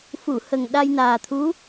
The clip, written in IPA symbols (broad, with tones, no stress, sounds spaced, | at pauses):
f u˨˩˨ h ə˨˩ ŋ ɗ a˧ j n aː˨˩ t̪ʰ u˧˥